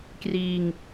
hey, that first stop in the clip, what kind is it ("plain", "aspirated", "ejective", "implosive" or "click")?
plain